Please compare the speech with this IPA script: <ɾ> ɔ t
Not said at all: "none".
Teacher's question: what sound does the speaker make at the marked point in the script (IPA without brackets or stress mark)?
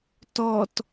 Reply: t